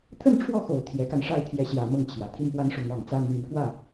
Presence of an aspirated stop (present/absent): present